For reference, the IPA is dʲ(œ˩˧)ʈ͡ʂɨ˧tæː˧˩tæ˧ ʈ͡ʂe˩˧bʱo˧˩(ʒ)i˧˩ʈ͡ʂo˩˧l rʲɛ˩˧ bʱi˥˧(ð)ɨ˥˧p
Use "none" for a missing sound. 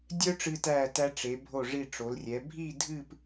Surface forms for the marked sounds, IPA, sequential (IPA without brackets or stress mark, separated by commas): œ˥, ʐ, dʱ